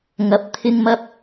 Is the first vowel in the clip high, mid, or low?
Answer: low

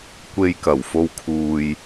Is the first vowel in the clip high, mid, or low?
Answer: mid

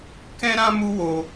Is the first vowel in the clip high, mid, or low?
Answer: mid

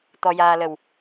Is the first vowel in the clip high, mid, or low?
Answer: mid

